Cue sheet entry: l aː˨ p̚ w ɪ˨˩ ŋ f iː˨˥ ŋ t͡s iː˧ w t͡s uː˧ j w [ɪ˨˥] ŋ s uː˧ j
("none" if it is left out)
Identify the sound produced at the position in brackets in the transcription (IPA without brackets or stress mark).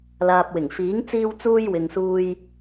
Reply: ɪ˨